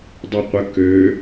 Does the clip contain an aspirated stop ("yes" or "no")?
no